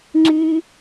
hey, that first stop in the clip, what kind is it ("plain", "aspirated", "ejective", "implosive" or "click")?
click